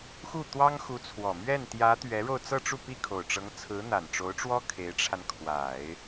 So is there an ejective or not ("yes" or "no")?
no